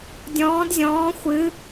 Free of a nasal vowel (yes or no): no